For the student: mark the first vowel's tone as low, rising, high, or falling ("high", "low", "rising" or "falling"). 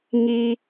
high